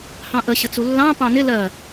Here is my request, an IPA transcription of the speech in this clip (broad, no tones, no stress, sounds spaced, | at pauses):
h ɑ̃ ʔ ə ɕ ə t͡s u lː ɑ̃ p ɑ̃ n ɪ l ɜ